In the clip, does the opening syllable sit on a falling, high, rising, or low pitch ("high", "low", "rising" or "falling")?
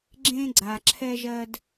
high